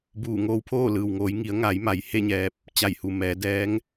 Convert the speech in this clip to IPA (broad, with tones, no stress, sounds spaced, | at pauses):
b uː˧˩ ŋ oː˧ w pʰ oː˥˨ l ɯː˩ w ŋ oː˩˧ j ŋ i˩˧ ə̯ ŋ a˩˧ j m a˩˧ j h e˥˨ ɲ ɛː˧ p̚ | t͡ɕ a˧˩ j h u˩ m ɛː˩˧ d ɛː˧˥ ŋ